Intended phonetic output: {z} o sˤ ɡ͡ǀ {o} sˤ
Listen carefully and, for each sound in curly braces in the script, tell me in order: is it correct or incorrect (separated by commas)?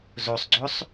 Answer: correct, correct